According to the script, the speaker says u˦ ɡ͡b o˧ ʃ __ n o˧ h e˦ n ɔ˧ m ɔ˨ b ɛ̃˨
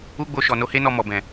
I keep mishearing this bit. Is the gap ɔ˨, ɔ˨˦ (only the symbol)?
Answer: ɔ˨